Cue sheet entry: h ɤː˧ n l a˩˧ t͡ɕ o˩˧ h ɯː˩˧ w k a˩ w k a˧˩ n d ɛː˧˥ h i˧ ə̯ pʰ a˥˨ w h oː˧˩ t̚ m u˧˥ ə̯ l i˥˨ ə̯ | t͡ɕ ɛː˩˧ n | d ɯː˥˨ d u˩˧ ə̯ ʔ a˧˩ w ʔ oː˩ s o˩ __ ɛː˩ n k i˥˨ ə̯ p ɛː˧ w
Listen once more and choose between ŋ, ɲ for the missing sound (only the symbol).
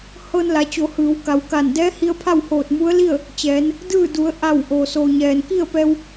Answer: ɲ